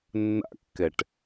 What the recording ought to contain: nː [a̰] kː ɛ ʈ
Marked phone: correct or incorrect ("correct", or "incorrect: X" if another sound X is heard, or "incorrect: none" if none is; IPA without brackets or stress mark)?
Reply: correct